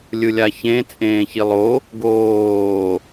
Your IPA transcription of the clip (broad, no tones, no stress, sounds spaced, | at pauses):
lʲ ɯ lʲ a ç ẽ t͡sʼ ẽː ç i lˠ o | ɡ oː